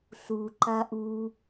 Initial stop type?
click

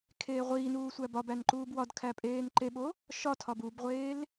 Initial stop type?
aspirated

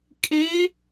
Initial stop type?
ejective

